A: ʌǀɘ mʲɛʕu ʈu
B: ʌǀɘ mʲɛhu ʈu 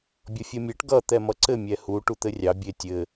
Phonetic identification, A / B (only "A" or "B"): B